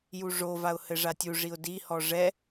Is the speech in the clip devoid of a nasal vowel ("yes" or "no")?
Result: yes